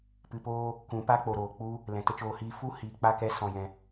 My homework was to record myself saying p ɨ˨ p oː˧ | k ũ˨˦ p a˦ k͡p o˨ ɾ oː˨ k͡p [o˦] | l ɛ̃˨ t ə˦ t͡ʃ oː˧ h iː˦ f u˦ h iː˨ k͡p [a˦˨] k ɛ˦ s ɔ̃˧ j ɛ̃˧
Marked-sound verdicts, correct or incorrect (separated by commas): incorrect, correct